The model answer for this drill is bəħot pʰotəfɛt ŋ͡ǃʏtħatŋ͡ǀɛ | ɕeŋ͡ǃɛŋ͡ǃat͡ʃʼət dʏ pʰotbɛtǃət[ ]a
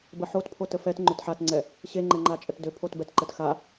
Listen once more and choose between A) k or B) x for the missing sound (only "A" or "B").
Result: B